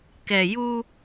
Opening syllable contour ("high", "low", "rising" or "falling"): low